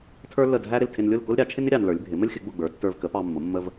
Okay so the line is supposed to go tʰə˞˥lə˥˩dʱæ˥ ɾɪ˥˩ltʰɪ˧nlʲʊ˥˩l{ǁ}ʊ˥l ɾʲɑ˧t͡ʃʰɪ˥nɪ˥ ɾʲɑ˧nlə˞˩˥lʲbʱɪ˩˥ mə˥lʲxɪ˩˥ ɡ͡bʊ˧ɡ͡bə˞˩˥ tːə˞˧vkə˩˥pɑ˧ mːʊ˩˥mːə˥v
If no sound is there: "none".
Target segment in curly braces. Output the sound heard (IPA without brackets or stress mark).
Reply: k